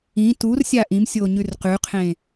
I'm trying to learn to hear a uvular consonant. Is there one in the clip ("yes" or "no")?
yes